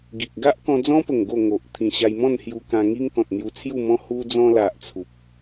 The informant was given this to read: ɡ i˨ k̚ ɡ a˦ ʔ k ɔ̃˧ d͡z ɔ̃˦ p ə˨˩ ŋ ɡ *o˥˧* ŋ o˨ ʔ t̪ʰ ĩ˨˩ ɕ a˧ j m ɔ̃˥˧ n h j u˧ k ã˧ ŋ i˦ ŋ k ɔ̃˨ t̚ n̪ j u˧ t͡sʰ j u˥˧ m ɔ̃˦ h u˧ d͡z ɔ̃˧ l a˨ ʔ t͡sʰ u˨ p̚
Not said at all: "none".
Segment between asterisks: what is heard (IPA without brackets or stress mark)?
o˥˧